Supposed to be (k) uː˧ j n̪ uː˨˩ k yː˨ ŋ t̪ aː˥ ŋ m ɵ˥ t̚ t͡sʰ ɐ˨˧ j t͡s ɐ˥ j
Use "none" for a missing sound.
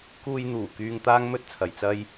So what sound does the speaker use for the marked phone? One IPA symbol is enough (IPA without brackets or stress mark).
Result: k